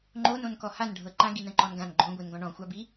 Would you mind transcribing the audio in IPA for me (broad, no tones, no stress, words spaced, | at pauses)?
ŋ͡ǃonõn kɔhanɖʱɤ ǃãɡi nə̃ǃɔnɡãn ɡ͡ǃõɡʷin ɡɔ̃ɳɔ̃xʷabi